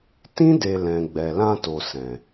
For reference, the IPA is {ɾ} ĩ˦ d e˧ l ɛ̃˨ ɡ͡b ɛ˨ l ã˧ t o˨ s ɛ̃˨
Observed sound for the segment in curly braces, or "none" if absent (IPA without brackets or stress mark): t